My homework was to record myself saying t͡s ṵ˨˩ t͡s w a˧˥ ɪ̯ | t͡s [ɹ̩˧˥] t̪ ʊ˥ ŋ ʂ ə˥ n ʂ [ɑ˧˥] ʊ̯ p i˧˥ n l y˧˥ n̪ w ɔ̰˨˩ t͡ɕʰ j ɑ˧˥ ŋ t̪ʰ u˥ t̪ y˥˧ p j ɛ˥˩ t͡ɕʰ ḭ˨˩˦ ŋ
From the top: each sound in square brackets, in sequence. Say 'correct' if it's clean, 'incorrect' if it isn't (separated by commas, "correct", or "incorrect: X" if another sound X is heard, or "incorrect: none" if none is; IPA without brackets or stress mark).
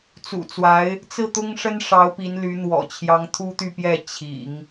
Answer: incorrect: ɹ̩˥˩, correct